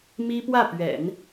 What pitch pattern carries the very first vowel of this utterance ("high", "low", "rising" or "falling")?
high